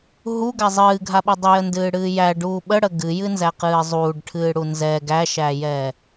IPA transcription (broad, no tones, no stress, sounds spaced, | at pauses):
ɦ u ɡ a zˤ ɨː ɡʱ a ɓ ɨ dˤ ə j ə n d ɨː ɽ ɨː j æ ɖ uː ɓ ə ɽ ə ɡ ɨ j ɨ n z æ q ɨː zˤ uː ɖ ʈʰ ɨː ɽ u n z ɛ ɡ æ ʃ æ j ɛː